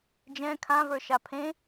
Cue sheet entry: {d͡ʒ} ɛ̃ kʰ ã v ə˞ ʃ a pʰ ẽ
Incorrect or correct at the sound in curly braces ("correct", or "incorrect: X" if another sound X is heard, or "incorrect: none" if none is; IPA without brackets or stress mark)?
correct